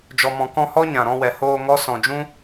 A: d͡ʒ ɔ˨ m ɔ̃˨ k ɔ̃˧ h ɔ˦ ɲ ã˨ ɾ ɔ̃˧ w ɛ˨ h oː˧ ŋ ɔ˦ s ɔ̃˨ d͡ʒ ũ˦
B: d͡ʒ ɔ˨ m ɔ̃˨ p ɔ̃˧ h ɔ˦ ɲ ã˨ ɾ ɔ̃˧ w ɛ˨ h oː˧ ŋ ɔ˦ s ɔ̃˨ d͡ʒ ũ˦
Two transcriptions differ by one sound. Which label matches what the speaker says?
A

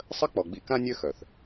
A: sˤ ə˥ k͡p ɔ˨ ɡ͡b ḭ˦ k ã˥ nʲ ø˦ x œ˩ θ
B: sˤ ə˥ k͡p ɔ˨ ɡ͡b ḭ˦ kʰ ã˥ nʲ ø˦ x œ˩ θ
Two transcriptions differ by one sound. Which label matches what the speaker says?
A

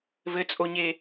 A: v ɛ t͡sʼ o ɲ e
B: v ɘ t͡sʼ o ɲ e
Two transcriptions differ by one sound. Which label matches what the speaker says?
B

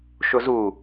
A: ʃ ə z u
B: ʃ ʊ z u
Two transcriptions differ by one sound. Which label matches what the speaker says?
B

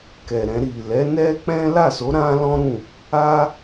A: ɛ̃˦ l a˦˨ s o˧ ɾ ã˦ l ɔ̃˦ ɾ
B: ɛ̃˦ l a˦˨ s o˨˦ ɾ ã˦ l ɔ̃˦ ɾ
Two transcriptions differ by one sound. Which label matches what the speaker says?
B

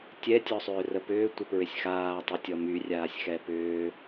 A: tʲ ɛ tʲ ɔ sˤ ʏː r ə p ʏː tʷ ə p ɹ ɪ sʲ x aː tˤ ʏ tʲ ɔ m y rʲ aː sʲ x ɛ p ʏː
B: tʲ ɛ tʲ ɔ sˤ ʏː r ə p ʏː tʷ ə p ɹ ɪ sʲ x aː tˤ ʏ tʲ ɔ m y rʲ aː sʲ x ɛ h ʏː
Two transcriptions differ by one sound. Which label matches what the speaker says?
A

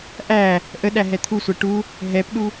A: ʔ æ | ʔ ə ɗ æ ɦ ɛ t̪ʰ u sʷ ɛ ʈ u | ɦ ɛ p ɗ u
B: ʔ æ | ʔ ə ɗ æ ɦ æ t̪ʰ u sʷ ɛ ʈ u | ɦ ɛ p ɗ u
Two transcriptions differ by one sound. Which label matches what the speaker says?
A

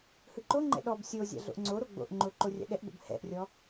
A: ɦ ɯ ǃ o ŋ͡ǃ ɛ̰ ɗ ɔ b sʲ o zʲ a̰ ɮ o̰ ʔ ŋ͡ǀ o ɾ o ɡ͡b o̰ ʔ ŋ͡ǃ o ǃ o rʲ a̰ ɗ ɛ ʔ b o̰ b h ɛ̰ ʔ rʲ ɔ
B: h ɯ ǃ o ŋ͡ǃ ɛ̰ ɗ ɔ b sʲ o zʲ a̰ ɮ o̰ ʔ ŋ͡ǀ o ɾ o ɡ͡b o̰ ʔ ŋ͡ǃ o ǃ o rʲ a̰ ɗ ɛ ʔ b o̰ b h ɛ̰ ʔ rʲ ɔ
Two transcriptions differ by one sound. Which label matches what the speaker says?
B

